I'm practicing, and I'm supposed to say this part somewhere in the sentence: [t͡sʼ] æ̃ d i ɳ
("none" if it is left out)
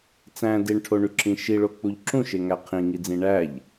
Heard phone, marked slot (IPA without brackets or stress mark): t͡s